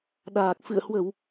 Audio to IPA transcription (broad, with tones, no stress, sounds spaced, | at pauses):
ɗ aː˨˩ k̚ f ɨ̰˧˨ ə̯ h w ə˧˩˨ w